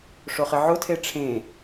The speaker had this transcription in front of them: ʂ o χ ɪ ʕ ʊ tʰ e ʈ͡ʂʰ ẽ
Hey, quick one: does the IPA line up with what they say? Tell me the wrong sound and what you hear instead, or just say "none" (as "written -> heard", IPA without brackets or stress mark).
none